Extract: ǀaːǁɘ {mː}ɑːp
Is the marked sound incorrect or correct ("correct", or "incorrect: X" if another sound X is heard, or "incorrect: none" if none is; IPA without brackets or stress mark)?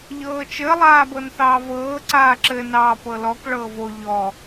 incorrect: n